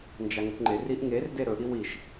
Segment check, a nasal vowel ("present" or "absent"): absent